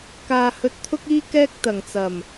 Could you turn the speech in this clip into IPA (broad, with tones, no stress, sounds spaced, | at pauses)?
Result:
k aː˨ h ɵ˧ t̚ t̪ʰ ʊ˥ k̚ iː˥ k ɛː˥ k̚ t̪ ɐ˨˩ ŋ t͡s ɐ˨˩ m